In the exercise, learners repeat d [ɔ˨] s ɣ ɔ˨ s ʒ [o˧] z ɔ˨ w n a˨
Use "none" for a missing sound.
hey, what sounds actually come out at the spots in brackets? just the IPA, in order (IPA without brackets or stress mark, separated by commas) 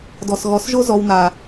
ɔ˨, o˧